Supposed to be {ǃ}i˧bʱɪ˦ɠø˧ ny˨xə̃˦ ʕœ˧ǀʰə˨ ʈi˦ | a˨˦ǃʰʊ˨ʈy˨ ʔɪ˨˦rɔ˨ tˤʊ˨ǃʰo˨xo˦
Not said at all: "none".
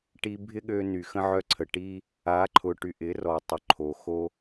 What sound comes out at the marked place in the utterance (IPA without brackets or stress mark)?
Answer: ʈ